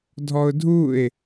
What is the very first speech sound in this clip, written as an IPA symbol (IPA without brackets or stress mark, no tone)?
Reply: dʱ